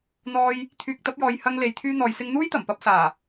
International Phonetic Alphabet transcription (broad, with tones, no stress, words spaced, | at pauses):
n̪ɔː˧j | t̪ʰyː˨k̚t̪ɐ˨˥p̚jɔː˨jhɐ˧ŋ le˨˧jt̪ʰyː˥n̪ɔː˨jsɪ˥ŋ n̪uː˥jt̪ɐ˨˩mpɐ˧p̚saː˨˩